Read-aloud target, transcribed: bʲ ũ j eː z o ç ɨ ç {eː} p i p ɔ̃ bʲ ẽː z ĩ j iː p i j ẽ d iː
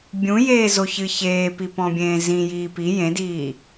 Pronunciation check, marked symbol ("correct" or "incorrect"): correct